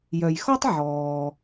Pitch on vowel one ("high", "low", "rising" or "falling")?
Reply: low